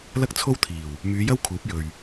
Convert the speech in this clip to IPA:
l ɐ˥ k̚ t͡sʰ o˥ w t̪ʰ iː˨˩ w | m yː˨˧ j ɐ˥ w kʰ uː˨˥ p̚ j ɵ˨ ɥ

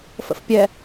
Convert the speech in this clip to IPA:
f ə̰ f pʲ ɛ

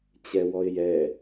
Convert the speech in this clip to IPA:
t͡ɕ ɛ w ɔ ɪ̯ j ɛ

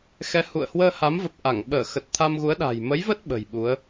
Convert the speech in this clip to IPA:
x ɛ˨˦ h ṵ˧˨ ə̯ h w əː˧ h a˨˦ m v ə˨˩ p̚ ʔ a˧˩ ŋ ɓ əː˧˩ x ə˨˩ t̚ t̪ʰ a˧ m ɣ u˨˦ ə̯ ɗ a̤˨˩ j m ə˨˦ j v ə˦˥ t̚ ɓ ə̤˨˩ j ɓ u˨˦ ə̯

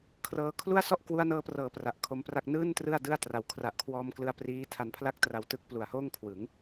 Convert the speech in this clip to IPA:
kʰ r ɤː˧ kʰ l u˥˩ a̯ s ɔ˥˩ ʔ k w u˧ a̯ n ɤː˧ p r ɤː˩˦ p r a˨˩ ʔ kʰ o˧ m p r a˥˩ k̚ n ɯː˥˩ n t r ɯ˥˩ a̯ d ɯ˥˩ a̯ t r a˨˩ w kʰ r a˨˩ ʔ kʰ w ɔː˧ m k l ɯ˧ a̯ p r iː˦˥ tʰ a˧ n pʰ l a˥˩ k̚ t r a˧ w t ɯ˦˥ k̚ p l u˨˩ a̯ h oː˥˩ ŋ kʰ w ɯ˩˦ ŋ

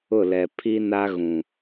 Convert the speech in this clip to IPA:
ʊ˦˨ l ɛ˨ pʰ i˦ n a˦ ɣ ũ˨

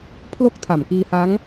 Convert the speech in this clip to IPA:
pʰ l o˥˩ k̚ tʰ a˨˩ m k iː˧ h a˦˥ ŋ

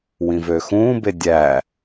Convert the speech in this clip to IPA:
w ĩ v ø x ũː b e dʲ æ

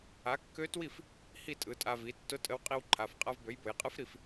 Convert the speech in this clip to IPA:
a˩˥ kː ø˧˥ t w i˥˩ f | h i˥˩ tʼ ɯ˩˥ tʼ a˧ v i˩˥ tː ʊ˧˥ tʼ ə˧ w qʼ i˧ w ǃʰ a˩˧˩ f qʼ a˧ v b ø˩˥ j b ʊ˩˧ j qʼ ɯ˧˥ f ɾ i˧ f

